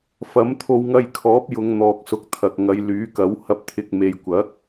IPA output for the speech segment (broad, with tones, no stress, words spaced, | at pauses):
fɐ˨˥mt̪ʰo˧wŋɐ˧jkʰɔː˨˥p̚ jʊ˨˧ŋn̪ɔː˨k̚sʊ˨˥k̚t̪ʰɐ˨k̚ ŋɐ˨˧jlyː˨˥kɐ˨˥whɐ˧p̚ t̪ʰɪ˨k̚ me˨jkʷɐ˨˥k̚